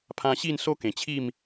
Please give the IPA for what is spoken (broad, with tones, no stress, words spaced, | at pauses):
pʰã˧ɕi˥˧n so˦kẽ˨˩t͡ɕʰi˥˧m